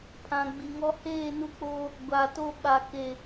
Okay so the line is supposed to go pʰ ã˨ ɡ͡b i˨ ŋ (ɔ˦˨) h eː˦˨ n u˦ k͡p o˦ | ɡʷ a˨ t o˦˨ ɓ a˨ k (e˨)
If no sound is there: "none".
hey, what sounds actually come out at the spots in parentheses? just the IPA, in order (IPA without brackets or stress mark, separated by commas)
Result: ɔ˦, e˨